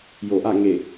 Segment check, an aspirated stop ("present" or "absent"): absent